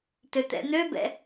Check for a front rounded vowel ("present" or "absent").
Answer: present